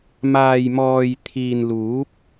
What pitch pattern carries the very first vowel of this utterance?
low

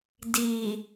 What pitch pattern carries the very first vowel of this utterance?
low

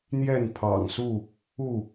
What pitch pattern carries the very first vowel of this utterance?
falling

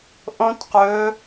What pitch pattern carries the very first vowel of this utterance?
high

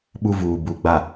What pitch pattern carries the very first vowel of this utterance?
high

